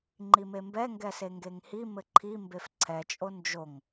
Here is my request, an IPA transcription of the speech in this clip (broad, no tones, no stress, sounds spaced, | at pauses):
ŋ͡ǃ i m e m b ɛ ŋ ɡ ɛ s e ŋ ɡ e ŋ h i m ɘ ǃʰ i m b e f ǀʰ ɛ t͡ʃʼ o n d͡ʒ o ŋ